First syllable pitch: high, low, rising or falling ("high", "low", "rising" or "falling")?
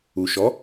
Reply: low